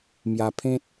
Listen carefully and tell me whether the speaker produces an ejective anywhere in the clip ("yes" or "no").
no